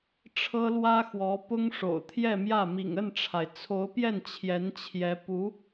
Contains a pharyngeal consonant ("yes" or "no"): no